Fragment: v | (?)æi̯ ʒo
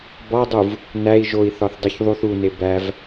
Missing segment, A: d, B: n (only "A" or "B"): B